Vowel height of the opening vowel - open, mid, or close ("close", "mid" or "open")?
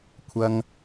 open